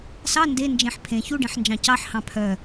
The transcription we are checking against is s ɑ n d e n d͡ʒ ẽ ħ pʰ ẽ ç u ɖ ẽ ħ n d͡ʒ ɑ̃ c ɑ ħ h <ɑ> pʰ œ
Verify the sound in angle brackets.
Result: incorrect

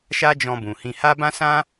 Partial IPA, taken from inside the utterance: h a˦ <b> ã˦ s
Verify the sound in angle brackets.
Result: correct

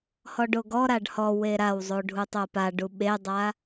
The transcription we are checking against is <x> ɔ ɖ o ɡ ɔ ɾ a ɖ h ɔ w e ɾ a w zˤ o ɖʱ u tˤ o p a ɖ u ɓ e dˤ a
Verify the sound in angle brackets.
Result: incorrect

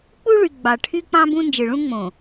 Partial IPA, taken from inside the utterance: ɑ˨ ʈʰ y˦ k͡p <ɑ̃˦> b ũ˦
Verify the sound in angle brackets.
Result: correct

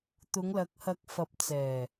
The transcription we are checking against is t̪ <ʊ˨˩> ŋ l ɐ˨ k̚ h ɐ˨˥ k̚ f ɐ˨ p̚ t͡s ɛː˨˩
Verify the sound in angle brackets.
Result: incorrect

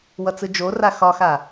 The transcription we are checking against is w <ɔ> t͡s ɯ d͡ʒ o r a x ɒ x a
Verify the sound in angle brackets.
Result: incorrect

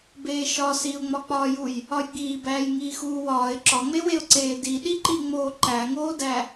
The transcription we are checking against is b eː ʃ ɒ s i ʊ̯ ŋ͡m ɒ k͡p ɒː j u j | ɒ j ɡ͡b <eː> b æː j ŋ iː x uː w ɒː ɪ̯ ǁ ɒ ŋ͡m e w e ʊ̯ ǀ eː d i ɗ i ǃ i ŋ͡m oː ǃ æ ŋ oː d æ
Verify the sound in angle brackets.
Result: incorrect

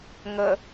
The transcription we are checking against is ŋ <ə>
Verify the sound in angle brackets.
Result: correct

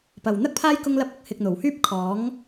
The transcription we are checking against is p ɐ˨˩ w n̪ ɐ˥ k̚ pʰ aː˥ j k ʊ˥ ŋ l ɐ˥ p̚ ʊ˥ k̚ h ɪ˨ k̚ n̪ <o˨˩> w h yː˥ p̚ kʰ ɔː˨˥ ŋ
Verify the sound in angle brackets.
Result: correct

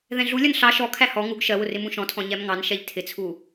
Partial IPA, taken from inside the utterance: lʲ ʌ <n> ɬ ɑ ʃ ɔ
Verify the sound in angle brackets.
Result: correct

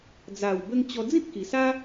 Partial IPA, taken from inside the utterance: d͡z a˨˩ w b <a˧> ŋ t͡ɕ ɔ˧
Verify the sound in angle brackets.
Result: incorrect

